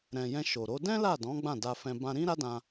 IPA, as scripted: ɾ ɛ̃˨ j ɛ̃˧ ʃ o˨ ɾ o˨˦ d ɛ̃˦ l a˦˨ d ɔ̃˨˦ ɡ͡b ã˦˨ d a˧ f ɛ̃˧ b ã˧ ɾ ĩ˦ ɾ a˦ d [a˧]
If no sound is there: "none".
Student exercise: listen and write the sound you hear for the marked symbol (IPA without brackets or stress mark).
ã˧